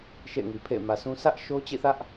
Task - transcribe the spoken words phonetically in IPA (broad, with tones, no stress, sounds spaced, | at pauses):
ʃ ḛ˦˨ ɪ̯ ŋ i˨ pʰ ḛ˦˨ ɪ̯ m ä˨ s ũ˦ sʰ ä˦ ʔ ʃ o˦ t͡ɕ ḭ˦˨ θ ä˦ ʔ